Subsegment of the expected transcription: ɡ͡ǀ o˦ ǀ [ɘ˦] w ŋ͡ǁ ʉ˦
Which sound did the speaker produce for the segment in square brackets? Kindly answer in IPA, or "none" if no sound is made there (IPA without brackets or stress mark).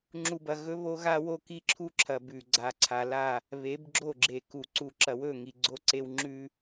e˦